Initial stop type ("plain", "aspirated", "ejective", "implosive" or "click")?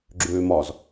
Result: click